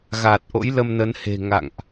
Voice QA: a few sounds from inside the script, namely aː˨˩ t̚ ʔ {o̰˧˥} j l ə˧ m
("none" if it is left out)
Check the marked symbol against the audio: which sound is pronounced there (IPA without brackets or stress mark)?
o̰˧˥